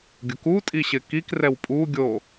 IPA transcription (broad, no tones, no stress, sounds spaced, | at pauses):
ɡʲ ʊ k u tʼ i ɕ ɪ k i k r ɛ w pʼ u ɡʲ o